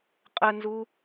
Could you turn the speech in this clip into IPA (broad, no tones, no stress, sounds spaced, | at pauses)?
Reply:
qʼ ə n z u